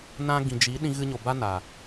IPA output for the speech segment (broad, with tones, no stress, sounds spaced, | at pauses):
n ã˧ ɡ ĩ˨ d͡ʒ i˨˦ ɗ ĩ˧ ɣ ɨ˧ ɲ o˨ b a˦ n a˨